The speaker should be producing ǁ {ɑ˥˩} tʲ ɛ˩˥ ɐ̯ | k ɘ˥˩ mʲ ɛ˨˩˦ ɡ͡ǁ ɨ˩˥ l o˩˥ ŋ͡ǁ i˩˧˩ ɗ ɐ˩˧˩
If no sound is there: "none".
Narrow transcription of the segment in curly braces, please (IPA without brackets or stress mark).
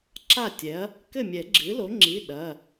a˥˩